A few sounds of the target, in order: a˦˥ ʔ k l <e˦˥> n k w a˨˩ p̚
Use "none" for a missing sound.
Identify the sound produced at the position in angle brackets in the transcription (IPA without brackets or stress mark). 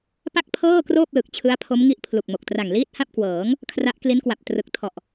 i˦˥